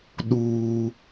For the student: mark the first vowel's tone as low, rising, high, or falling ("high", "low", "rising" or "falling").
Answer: high